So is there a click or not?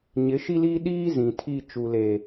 no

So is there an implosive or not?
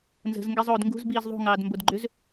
no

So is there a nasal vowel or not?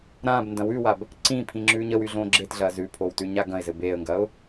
yes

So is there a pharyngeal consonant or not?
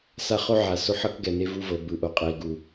yes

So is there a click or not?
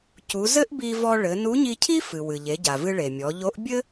no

